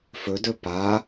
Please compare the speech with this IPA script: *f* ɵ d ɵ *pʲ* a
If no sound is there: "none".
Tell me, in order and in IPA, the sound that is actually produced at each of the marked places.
f, p

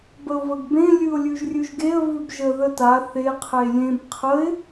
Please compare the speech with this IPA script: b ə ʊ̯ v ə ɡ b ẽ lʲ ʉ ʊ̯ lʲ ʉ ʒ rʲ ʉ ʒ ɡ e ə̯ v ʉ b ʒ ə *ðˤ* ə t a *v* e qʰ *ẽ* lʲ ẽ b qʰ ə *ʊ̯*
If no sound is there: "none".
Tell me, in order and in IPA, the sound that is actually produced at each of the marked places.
ð, θ, e, ɪ̯

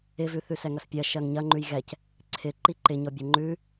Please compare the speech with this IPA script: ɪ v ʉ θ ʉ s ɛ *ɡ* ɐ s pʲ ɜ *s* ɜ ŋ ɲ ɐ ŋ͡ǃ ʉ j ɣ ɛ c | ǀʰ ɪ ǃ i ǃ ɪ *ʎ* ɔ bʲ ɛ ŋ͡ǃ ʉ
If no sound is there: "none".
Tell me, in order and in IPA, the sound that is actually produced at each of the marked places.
ŋ, ʃ, ɲ

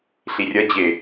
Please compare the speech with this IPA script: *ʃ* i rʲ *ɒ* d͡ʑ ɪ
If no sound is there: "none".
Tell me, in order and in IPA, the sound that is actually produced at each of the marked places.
ɬ, ʌ

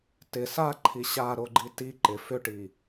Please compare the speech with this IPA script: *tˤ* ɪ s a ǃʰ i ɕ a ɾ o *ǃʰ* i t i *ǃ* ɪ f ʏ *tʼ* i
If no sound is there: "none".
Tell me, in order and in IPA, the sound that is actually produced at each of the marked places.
t, ɡ͡ǃ, ǃ, ʈ

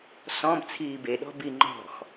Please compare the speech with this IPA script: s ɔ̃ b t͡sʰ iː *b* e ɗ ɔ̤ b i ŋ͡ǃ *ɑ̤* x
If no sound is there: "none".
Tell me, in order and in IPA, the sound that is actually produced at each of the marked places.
b, ɔ̤

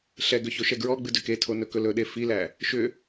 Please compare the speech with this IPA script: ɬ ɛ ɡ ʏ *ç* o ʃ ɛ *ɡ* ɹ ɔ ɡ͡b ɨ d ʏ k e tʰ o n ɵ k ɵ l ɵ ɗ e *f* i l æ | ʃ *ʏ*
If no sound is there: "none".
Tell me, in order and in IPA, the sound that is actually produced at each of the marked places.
ç, ɡ, f, ʏ

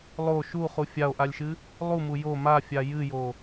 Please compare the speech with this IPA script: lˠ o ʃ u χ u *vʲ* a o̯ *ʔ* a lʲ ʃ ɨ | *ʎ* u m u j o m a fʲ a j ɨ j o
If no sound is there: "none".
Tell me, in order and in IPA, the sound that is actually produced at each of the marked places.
fʲ, ʔ, lˠ

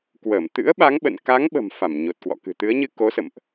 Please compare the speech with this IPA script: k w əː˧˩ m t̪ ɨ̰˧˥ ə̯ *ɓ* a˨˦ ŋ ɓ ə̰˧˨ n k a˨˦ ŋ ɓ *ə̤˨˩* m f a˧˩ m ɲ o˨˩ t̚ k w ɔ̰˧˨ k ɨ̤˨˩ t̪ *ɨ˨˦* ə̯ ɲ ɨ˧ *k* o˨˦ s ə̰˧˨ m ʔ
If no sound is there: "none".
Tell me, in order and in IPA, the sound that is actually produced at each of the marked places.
ɓ, ə̤˨˩, ɨ˨˦, k

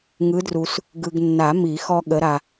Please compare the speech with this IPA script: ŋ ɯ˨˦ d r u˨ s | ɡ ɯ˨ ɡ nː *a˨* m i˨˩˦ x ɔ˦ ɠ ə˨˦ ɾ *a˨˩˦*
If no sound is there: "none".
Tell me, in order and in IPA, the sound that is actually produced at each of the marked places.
a˨˩˦, a˨

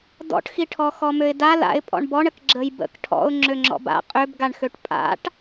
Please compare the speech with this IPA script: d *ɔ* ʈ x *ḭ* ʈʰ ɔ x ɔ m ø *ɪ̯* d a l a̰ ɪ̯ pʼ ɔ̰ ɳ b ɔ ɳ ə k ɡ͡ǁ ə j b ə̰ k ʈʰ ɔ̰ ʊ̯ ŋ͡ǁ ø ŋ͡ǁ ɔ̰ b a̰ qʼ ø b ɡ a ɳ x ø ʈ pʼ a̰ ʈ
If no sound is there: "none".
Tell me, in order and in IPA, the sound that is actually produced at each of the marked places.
ɔ̰, i, ɪ̯

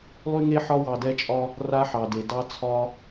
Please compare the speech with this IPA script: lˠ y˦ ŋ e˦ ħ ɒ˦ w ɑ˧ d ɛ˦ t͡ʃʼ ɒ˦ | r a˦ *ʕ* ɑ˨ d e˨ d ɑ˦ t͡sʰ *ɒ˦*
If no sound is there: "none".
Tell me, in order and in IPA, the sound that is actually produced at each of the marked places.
ħ, ɒ˦

